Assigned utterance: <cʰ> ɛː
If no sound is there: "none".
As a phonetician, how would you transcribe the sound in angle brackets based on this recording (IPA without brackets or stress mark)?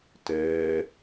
t